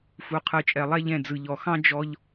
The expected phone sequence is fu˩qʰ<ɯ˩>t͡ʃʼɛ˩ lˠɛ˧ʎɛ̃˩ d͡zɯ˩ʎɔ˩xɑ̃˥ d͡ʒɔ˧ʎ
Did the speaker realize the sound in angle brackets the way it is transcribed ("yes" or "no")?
yes